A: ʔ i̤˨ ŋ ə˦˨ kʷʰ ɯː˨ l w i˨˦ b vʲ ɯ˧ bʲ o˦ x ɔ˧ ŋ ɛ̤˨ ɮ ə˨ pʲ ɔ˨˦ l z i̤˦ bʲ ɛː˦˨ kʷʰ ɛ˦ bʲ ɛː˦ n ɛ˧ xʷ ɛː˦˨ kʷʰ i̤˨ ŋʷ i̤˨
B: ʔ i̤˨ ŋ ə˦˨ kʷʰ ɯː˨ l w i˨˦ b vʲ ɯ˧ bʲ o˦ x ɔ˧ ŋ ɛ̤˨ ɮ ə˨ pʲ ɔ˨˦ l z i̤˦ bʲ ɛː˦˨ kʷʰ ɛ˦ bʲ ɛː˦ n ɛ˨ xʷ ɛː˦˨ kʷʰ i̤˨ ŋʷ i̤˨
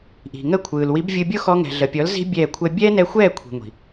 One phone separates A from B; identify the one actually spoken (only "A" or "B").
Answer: A